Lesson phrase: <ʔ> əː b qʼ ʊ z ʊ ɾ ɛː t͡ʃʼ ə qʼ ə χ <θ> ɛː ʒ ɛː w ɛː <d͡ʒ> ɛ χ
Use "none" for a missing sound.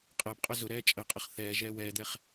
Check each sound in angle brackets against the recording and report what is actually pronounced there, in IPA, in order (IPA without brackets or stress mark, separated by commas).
qʼ, θ, d̪